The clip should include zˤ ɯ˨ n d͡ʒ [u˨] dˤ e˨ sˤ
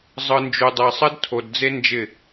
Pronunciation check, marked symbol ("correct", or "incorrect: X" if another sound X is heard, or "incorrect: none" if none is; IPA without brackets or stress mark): correct